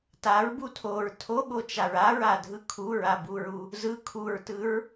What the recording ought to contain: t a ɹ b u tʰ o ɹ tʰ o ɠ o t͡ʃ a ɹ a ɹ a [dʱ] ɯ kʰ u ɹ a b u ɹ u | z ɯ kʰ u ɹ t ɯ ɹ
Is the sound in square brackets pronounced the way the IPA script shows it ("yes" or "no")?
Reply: yes